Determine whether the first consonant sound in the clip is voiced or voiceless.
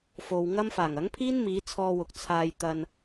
voiceless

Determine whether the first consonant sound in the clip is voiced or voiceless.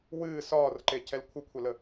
voiced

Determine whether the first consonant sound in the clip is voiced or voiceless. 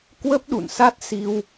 voiceless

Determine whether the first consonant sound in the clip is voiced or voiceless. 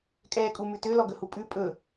voiceless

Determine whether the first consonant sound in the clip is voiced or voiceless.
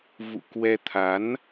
voiced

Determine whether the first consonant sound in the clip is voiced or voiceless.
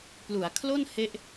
voiceless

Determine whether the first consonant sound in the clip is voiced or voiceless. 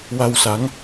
voiced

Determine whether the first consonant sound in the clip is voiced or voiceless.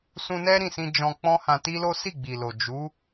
voiceless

